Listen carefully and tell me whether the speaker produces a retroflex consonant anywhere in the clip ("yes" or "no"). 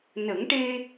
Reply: yes